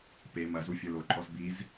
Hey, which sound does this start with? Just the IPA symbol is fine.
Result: p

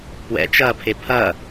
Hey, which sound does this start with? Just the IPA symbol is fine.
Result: p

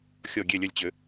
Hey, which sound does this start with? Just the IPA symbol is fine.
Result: xʲ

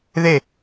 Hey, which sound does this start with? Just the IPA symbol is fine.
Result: ð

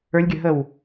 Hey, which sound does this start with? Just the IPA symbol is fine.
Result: ə˞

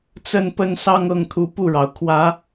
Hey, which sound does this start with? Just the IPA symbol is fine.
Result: t͡s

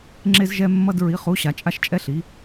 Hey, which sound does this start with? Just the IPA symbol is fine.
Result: ŋ͡ǁ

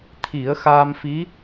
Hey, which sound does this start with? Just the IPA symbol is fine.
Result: t̪ʰ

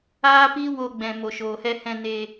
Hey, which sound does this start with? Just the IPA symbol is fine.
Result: aː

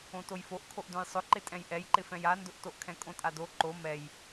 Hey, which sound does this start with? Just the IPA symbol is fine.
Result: õ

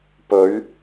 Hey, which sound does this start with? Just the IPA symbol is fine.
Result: p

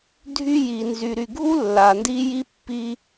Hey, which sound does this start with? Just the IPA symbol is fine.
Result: dʱ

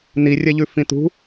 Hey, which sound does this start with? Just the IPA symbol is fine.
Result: n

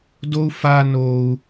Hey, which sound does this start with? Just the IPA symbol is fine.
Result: d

